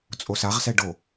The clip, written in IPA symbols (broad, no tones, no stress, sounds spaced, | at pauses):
t͡sʼ o s a ʁ s ɛ ɖ o